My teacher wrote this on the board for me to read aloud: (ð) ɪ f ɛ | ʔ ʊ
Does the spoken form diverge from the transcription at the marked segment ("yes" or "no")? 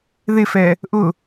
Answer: no